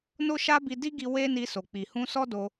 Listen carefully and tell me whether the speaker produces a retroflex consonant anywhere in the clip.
no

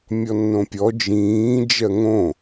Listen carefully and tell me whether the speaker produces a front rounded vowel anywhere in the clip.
no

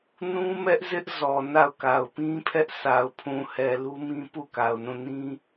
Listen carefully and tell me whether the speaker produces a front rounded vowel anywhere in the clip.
no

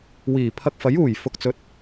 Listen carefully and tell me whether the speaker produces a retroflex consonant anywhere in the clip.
no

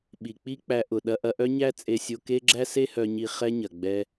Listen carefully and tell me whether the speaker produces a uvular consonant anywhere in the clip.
yes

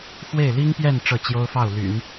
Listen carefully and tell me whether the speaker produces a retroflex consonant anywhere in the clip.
yes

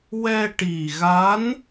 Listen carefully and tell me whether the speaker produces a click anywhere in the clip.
no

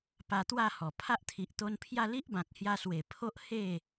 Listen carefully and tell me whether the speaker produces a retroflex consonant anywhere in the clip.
no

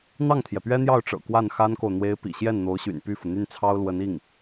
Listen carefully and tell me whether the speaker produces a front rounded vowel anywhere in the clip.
yes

